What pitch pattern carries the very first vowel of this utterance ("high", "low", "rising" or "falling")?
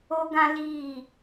high